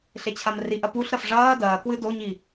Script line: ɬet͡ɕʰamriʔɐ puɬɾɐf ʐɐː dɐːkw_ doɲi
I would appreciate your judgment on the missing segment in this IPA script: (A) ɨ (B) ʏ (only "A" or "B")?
A